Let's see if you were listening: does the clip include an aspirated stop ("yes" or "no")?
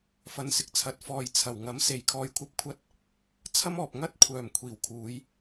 yes